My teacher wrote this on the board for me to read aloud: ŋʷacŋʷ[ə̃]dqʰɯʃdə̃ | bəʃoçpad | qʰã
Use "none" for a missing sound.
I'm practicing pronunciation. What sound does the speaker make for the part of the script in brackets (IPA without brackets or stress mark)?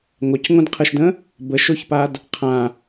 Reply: ə̃